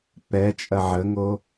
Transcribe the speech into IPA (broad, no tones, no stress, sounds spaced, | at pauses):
p ɛ t͡ʃʼ ɐ ʕ ə ŋ o